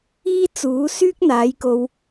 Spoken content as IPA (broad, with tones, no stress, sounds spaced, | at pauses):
iː˥ t͡s uː˨˥ s yː˥ k̚ n̪ aː˨˥ j k o˧ w